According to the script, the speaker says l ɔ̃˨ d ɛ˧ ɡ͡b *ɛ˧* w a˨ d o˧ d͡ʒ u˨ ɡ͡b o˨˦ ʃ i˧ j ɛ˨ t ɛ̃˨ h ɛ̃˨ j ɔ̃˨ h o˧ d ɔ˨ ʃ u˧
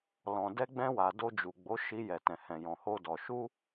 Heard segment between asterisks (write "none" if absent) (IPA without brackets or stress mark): ɛ̃˧